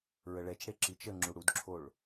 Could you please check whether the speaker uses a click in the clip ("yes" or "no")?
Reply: yes